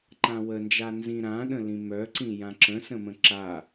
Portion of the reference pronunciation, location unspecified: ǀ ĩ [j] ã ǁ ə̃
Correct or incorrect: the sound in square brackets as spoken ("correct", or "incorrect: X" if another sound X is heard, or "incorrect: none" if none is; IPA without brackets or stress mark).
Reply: correct